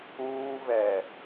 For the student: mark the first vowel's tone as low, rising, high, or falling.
high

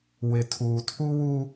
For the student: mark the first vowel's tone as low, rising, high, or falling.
low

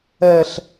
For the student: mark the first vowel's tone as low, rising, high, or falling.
high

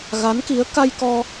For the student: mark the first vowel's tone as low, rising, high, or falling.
rising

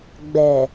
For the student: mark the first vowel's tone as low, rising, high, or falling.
low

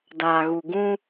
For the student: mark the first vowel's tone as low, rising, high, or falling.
low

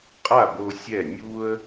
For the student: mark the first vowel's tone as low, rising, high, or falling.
falling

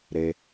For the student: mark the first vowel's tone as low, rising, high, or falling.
low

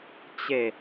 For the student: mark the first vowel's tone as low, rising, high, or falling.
low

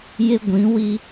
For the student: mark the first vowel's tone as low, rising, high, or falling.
high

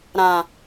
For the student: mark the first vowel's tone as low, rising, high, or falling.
low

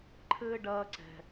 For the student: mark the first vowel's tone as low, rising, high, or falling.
high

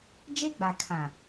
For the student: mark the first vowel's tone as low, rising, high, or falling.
high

